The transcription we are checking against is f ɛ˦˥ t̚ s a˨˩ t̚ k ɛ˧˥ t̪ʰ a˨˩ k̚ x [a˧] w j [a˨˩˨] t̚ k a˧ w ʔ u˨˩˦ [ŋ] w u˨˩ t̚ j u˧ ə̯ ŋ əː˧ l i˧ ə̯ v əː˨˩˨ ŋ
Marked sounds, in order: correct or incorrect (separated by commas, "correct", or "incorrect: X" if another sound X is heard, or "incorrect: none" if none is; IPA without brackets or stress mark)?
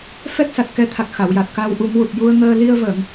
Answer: incorrect: a˨˩˨, incorrect: a˨˩, correct